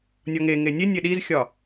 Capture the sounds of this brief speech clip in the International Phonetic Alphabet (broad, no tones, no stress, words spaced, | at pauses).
nʲɒŋeŋe nʲe nʲeɗizxʲɒ